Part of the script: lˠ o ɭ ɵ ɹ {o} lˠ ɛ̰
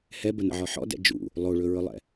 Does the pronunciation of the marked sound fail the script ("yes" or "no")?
yes